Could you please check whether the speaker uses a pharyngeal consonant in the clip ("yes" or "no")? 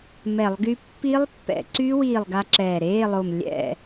no